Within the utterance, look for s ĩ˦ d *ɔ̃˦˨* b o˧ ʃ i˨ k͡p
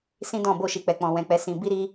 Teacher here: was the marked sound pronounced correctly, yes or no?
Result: yes